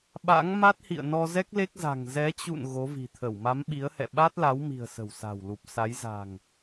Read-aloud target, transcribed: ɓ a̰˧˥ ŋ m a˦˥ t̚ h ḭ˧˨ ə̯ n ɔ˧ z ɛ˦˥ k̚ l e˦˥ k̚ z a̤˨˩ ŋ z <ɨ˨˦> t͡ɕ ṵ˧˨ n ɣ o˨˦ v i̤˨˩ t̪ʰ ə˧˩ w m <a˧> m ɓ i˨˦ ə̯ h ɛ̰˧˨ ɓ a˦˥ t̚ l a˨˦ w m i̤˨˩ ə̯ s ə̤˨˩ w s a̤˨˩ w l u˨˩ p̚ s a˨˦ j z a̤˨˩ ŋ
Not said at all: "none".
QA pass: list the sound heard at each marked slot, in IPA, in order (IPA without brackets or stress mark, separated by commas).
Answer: ɛ˨˦, a˨˦